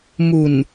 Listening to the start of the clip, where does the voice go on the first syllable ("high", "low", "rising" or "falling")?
low